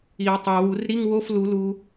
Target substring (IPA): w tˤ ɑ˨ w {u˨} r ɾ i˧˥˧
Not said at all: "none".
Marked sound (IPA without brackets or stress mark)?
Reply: u˨˩˦